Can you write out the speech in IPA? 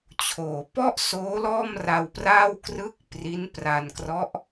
t͡ɕʰoː˩˦pɔ˥˩ʔsoː˦˥ lɔː˥˩mra˧wpraː˥˩wkrɯ˥˩k̚ pri˦˥npra˧nkrɔ˦˥ʔ

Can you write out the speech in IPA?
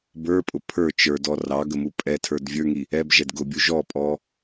bə˞pʼʊ pʰə˞ t͡ʃə˞dɔ rɑɡəmu pʼɛtʰə˞d vʲə˞ŋi | ɛbʒɛd ɡʊbʲu ʒɔpʼɔ

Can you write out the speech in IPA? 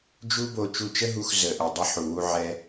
d͡ʒu˥bo˧ t͡ʃu˧t͡ʃə˥ɦu˧x zə˩ʔə˩ dˤə˧ħu˩wu˧ʕɛ˧

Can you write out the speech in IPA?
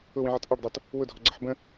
ʊwĩʕʌt ʔɑɖdˤɑt | wʊdʱɔɡ͡ǀʌħ bə̃

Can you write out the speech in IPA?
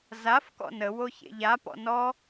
zaf kɔ̰nəwo çḛʎapɔ̰ nɔ

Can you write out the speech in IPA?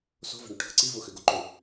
so̤və̤ɳoʈ hə̤ǀi vʊxøɡoǃø

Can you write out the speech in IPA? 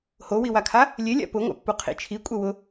howiwakʰa | lʲelʲa̰ pʊŋʷa̰pːu qʰḭt͡ʃʰi kʷʼɛwʊ

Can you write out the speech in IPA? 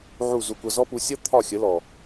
ʕu˦˨zu˧kʷʌ˧ zɔ˦pu˧ sʲʌ˦ t̪ʰɒ˦˨xʲə˨˦lɔ˨

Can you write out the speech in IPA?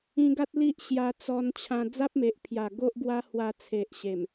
ĩ˧ ɡa˦t̚li˦ʔ ɕja˧ t͡sɔ˧nt͡ɕʰã˧ d͡za˦p̚me˨ʔpʰja˨˩ ɡo˦ʔɡwa˦hwa˧ t͡sʰe˨ʔɕe˨˩m

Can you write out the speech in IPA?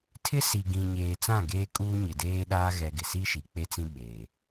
tʰɪ˦ si˨ɡĩ˨ɲeː˨t͡sã˦˨ ɡeː˦kʼuː˦ ɲɪ˨deː˦ɗaː˦ ɣɛ˦ɡɪ˨ si˦ ʃi˨k͡pe˦t͡sĩ˦ ɓeː˨

